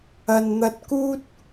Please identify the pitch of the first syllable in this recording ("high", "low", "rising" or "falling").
low